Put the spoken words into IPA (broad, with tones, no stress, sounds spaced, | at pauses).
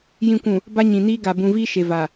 j ĩ˨ kʷ ũ˨ | b a˦ ɲ ĩ˨ n iː˦ ɡ a˨ b ũ˨ v iː˦ ʃ e˨ v a˨